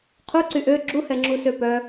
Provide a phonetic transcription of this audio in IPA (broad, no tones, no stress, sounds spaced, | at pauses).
qʰ u ǀ y ʔ ø ɡ͡ǁ u h ɛ ŋ͡ǁ u s ø p œ